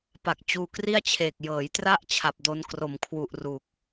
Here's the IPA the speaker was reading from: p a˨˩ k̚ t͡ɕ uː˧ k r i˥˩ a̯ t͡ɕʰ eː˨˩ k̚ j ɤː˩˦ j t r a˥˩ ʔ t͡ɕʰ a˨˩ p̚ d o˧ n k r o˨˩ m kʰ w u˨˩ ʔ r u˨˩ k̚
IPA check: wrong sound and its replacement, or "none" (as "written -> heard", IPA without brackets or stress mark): none